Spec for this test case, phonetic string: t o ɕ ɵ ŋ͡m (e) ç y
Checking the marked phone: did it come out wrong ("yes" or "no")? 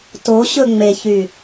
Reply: no